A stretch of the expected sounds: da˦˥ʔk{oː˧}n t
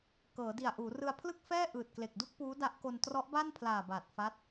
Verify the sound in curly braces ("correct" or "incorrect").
incorrect